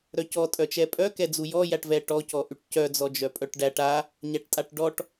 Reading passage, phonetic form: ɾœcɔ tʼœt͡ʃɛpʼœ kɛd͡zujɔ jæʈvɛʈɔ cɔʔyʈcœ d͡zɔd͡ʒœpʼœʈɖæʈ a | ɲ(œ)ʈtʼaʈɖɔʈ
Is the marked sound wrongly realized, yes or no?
yes